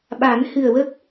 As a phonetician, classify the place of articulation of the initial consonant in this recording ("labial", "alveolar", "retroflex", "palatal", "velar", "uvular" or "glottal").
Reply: labial